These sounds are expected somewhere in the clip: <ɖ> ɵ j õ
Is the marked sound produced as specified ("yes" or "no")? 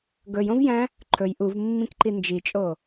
no